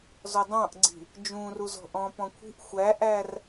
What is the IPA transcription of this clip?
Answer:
z ɔ dˤ ɑ̃ ʔ ɡ͡ǀ i̤ | d͡ʒ ũ r u z ɔ̤ ʔ ɔ̃ p ɔ̃ kʷʰ i̤ ʔ xʷ æ ʔ æ r

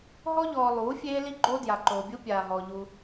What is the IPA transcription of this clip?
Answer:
ɦ ɔ˦ ʎ ɔː˨ lˠ uː˨˦ fʲ eː˦ l i˦ ɡ͡ǃ o˦ d j a˨ ǃ oː˨ bʲ u˦ pʲ aː˨ ɦ ɔː˨ ʎ u˦

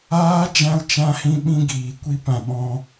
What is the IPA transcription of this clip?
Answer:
aː˦ d͡ʒ ã˧ l t͡ʃ ã˧ h ĩ˧ ɓ ĩ˧ ɡ iː˨ kʷ i˧ p ã˨ ɓ ɔ̃˧

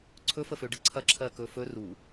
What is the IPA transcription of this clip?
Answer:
ǀʰ ɵ f ə f ø ɖ ə ǀʰ ɐ ǁʰ ɜ k ɵ f ɵ r u

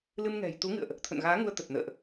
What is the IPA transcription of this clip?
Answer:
l ɨ˧ m ŋ ɛ̤˨˩ j t̪ u˨˦ ŋ ɨ̰˧˨ ə̯ ʔ | t̪ʰ ə̰˧˨ n ɣ aː˨˦ ŋ u˧ ə̯ t̪ ə˨˩ t̚ n ə̰ː˧˨ ʔ

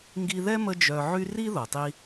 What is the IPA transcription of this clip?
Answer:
ŋ ɡ i˧ ð ɛ˥ m ə˥ d͡ʒ œ˧ ʕ y˥ r i˥ ð o˩ tˤ i˧

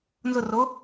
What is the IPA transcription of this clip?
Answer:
n z ʊ r o

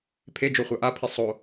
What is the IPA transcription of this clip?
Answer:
pʰ e d͡ʒ o χʷ a ʔ a pʰ i sˤ o

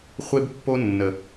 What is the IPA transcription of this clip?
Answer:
χʷ e˦ b pː o˦ nː ə˨

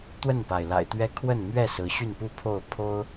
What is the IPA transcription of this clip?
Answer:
t̪ w ə˥˨ n p a˩ ɪ̯ l a̰˨˩ ɪ̯ t̪ ɥ ɛ˦ kʰ w ə˥˨ n m ɥ ɛ˥˨ s ɹ̩˨˦ ɕ y˥˨ n p u˥˨ pʰ o˥˨ ʊ̯ pʰ o˦ ʊ̯

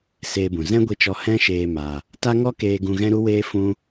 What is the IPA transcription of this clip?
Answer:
s eː˧ b ũ˨ z ɛ̃˦ ɡʷ i˧ t͡ʃ ɔ˧ h ɛ̃˦ ʃ eː˧ m a˧ | t a˦ ŋ ɔ˦ k eː˧ ɡ ũ˧ ɣ ɛ̃˦ ɾ u˦ w eː˦ f ũ˦

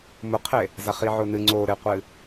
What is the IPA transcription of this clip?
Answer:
m ʊ qʰ e | z a χ i ʕ ʊ n ɨ ŋ͡ǀ o ɾ e qʷ ɨ

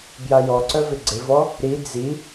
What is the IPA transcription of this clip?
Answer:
b j a j ɔ ǀ œ v ɪ ɡ͡ǀ ɪ v ɔ | ɾ i d͡z i

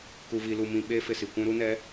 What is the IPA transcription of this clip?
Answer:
k u˨ v i˨ l u˨ m ĩ˨ ɓ eː˦ f ɪ˨ s i˨ kʷ ũ˦ ɾ u˦ n ɛ˨˦

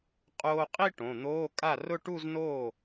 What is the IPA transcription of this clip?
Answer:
qʼ oː˧ qʼ i˥˧ ʈ õ˩˧˩ n̪ oː˧˥˧ kʼ a˥˩ r ʊ˥˧ ʈ u˥˧ z n oː˥˩

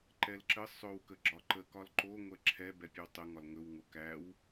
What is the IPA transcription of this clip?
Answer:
ǃ ɛ l ǁ ə sˤ ɵ w k ə ɡ͡ǁ ɒ ǃ ə k ɒ l ǃ o ŋʷ ɛ ǁʰ ɛ b ɛ pʲ ɵ w tˤ ə ŋ ɒ l ŋ ɵ w ŋ o k æ w

